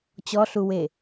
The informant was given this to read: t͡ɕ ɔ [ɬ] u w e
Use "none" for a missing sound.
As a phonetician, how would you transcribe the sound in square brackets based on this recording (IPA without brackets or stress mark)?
ɬ